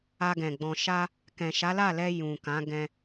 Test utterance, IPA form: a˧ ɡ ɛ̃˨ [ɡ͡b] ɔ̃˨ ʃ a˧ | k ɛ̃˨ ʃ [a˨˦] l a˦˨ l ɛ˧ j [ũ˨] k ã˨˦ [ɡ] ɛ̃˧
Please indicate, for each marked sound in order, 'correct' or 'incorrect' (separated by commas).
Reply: correct, correct, correct, correct